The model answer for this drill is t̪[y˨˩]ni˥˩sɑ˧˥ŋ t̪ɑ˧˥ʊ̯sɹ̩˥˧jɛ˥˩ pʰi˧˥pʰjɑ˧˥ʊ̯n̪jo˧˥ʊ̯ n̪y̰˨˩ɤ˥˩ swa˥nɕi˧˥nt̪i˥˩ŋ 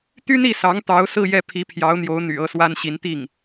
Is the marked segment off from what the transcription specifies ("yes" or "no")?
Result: yes